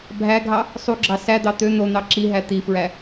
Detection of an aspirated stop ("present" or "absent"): absent